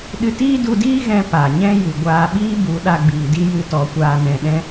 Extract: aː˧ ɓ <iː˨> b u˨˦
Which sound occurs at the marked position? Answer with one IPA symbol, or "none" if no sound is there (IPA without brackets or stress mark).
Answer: iː˦